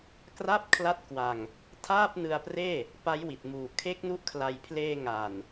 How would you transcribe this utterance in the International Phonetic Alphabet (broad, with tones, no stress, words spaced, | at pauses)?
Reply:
kra˥˩p̚kʰla˦˥t̚kwa˧ŋ | tʰaː˥˩p̚nɯ˧a̯preː˥˩ | pa˦˥jwi˨˩t̚ muː˨˩ kʰe˦˥k̚nu˦˥ʔkʰla˧j pʰleː˧ŋa˨˩n